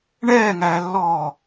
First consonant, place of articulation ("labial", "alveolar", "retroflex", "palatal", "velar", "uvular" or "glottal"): retroflex